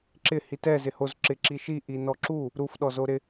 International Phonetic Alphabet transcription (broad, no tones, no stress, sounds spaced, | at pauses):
ǁ ɪ h i t ɛ z ɪ h o z ǁ ɪ ǁ i ʃ i ʔ i n ɔ ǁ u | ɾ u f ɗ ɔ z o ɾ ɪ